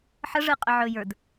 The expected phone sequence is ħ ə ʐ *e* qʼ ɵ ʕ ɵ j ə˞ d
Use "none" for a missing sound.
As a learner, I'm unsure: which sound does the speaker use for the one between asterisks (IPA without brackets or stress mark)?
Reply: ɨ